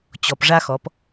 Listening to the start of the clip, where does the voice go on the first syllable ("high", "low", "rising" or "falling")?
low